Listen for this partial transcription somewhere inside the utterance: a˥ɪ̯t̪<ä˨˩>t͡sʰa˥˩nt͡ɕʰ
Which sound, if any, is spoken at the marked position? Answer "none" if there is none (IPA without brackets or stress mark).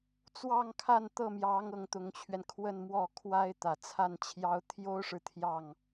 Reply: ä˨˩